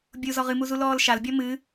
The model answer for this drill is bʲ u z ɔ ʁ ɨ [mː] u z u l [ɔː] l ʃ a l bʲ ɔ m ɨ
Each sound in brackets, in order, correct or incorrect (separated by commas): incorrect, correct